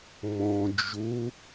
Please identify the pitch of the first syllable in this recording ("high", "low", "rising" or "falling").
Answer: low